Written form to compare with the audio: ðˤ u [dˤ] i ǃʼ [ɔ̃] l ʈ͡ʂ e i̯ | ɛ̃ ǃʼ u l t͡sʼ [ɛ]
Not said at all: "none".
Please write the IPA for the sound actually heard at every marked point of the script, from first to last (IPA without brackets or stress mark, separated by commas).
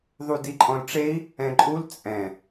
d, ɔ̃, ɛ̃